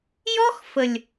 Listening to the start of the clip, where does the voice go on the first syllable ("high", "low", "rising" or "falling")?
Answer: high